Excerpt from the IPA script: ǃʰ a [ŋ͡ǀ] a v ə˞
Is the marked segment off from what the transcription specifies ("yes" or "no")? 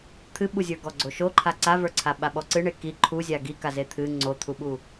yes